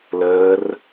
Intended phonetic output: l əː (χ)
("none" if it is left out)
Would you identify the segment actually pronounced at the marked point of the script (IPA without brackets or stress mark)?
r